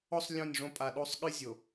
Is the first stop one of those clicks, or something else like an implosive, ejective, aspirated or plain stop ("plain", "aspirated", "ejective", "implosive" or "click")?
ejective